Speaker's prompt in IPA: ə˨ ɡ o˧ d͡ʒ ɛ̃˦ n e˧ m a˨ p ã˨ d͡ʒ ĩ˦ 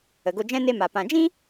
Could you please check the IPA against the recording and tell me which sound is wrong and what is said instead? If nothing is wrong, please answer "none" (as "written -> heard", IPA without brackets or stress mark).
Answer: none